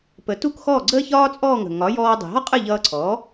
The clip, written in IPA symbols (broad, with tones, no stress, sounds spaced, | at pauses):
p ə˩˥ t u˥˩ k x ɔː˥˩ ɡ͡ǀ əː˥ ç ɒː˥ t͡sʼ ɔː˥˩ ŋ ə̤˩ ŋ ɒ˩˥ j ɔː˧ dˤ i̤˩ ɦ ɒ˥ qʼ ə˥˩ ʎ ʌː˧ ǀʰ ɔː˩˥